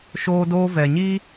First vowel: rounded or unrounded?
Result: rounded